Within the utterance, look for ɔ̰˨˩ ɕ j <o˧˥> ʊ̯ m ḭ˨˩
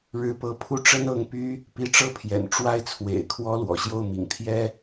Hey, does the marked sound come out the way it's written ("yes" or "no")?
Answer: no